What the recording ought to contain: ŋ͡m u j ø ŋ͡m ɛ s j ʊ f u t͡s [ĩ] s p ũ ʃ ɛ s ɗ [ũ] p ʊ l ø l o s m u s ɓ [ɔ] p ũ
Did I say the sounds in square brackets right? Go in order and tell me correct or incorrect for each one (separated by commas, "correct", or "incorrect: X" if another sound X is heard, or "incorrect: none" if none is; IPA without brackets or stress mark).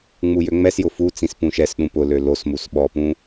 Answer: correct, correct, correct